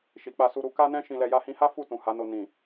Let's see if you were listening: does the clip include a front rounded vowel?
no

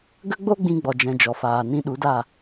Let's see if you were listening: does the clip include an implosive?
yes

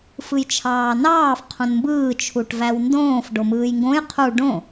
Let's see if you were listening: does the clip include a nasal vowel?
yes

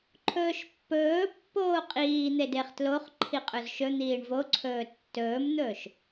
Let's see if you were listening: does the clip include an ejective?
yes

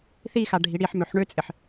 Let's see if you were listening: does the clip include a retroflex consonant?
yes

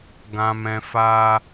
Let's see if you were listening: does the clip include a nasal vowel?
yes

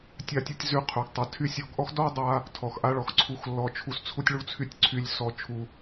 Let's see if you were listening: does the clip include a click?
yes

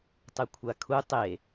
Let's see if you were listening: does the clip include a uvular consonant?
no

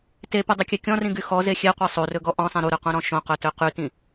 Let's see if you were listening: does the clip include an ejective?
no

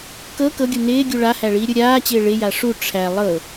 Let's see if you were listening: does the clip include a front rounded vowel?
no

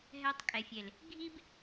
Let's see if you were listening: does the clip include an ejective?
yes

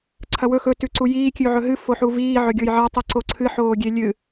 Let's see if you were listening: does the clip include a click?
yes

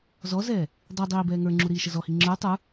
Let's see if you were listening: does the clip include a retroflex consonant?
no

